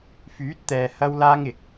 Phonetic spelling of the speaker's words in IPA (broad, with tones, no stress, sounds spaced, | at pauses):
f yː˨˥ t̚ t̪ ɛː˨ h ɐ˥ w l aː˥ ŋ ɪ˨ k̚